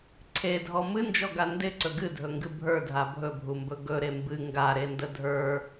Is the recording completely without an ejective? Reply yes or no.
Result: yes